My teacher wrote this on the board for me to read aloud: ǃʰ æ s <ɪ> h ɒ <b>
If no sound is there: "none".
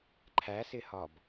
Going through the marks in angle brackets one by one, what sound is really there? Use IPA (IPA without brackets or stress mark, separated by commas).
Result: ɪ, b